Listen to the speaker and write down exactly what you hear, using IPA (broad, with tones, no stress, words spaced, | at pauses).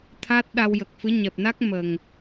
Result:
t̪ʰa˦˥t̚ɗa˧wjə˨˩k̚fɨ˧˥ ɲɛ˨˩p̚na˦˥k̚ mə˨˩ŋ